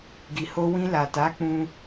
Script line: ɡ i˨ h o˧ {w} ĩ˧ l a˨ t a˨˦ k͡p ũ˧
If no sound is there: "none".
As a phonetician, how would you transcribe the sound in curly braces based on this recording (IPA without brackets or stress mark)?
w